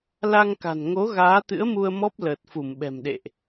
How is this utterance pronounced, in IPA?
la˧ŋka̤˨˩n ŋo˨˦ ɣaː˨˦t̪ɨ̰˧˥ə̯mu˧ə̯mɔ˦˥p̚ ləː˨˩t̚fu˧˩mɓɛ̤˨˩mɗḛ˧˨ʔ

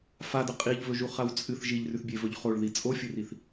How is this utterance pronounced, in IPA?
fadɐ qʼiʎvɵʒuχaw t͡sʼɨθ ʒiʎrʉθbʲevɵʎ χoɭði t͡sʼofʲɨriθ

